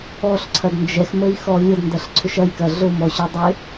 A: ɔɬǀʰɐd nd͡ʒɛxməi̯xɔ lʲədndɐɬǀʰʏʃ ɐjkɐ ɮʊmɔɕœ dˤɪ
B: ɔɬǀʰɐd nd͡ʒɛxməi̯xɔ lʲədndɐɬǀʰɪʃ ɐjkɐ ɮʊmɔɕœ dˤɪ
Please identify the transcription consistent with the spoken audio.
A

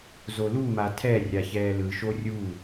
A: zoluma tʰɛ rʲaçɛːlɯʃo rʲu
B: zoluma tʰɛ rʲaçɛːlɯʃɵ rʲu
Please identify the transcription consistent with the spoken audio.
A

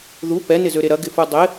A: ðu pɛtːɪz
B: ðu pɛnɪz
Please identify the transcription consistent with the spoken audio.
B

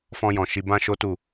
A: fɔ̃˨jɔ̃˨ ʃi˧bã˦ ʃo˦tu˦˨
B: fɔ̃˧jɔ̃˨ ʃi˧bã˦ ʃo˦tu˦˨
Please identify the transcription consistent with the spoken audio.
B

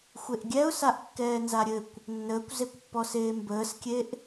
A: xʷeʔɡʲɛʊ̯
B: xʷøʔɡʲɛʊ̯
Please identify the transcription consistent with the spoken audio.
A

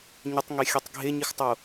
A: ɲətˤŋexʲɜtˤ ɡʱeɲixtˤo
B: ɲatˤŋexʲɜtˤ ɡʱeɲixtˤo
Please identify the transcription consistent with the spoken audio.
A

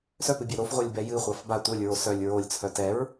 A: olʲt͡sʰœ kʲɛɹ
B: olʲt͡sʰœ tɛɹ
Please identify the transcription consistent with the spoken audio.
B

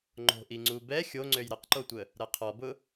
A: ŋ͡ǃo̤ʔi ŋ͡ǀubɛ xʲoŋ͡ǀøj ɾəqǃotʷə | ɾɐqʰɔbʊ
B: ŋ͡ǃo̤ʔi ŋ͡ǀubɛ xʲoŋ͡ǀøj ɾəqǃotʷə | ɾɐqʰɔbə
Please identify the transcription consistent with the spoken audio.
A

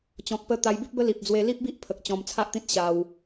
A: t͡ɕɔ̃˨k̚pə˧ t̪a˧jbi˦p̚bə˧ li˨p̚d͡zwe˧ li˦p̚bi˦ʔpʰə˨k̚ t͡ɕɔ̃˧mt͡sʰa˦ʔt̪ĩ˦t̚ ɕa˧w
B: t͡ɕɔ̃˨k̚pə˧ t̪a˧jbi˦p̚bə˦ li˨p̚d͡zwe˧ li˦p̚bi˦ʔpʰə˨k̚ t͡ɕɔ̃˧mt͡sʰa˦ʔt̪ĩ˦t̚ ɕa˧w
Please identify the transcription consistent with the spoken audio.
B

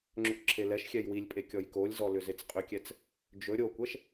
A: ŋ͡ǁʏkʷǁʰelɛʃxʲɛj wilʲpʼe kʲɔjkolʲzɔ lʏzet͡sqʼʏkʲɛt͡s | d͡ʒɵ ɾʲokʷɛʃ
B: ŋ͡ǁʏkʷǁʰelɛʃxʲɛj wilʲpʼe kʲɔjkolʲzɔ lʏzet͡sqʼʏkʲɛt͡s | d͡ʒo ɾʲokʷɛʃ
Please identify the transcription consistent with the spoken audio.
A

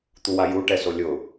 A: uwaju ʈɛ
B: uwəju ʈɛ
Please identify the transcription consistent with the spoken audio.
A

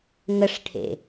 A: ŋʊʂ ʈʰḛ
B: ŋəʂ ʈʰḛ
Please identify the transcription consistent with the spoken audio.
B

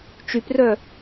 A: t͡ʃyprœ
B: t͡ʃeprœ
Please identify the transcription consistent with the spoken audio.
A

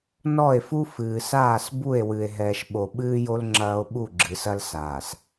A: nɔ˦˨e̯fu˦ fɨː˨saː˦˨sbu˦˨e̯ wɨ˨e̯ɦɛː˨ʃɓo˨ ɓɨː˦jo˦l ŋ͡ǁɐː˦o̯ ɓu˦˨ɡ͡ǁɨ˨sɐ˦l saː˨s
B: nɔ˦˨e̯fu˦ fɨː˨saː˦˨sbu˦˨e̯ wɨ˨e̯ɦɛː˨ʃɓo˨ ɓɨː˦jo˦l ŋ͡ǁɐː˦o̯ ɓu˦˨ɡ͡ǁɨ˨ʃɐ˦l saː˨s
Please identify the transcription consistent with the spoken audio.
A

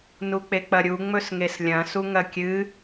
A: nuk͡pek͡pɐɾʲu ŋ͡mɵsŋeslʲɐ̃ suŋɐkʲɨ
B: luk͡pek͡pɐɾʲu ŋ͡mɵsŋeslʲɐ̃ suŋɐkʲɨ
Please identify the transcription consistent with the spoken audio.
A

